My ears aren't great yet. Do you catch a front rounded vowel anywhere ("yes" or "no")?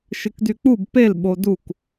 yes